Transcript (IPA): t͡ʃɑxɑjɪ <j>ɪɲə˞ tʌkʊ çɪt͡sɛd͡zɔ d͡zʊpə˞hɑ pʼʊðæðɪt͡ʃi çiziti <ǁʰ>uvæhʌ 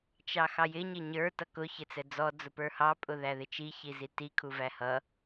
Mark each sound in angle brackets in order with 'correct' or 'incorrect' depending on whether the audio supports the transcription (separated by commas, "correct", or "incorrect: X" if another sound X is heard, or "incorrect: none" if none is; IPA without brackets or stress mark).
incorrect: ɲ, incorrect: kʰ